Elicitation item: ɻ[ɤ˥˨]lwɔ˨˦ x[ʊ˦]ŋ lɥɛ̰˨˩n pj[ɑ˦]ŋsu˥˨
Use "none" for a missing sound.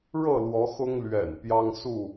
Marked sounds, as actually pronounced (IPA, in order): ɤ˥˨, ʊ˦, ɑ˦

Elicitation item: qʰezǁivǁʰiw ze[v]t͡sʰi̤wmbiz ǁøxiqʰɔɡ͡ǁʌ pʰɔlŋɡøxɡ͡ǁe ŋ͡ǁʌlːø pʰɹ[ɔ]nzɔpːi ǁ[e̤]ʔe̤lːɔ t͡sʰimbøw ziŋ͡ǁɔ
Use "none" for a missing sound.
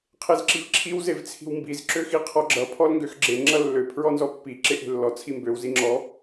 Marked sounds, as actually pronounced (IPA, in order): v, ɔ, e

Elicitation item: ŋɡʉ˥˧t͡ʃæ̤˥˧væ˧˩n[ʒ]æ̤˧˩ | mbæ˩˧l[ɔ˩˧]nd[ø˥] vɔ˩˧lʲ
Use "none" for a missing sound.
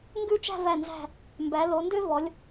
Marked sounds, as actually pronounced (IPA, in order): z, o˩˧, ø˥

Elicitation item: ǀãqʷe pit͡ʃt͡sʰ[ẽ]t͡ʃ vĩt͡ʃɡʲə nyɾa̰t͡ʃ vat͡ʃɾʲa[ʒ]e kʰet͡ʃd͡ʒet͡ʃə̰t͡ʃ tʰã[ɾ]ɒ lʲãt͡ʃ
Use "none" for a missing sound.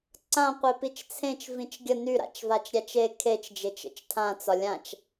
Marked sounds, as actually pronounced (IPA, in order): ẽ, t͡ʃ, t͡s

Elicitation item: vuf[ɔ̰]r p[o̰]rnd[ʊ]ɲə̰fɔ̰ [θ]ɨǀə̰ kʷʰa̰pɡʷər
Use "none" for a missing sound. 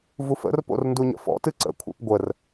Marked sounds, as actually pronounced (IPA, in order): ə̰, o̰, u, t

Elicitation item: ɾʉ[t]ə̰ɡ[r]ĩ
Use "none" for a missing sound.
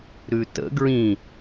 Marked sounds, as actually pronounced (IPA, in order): t, ɹ

